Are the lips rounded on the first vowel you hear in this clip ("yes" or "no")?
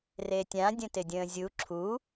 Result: no